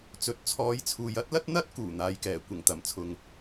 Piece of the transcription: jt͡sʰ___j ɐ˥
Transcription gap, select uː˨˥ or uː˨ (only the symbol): uː˨